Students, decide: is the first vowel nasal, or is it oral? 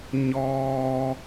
oral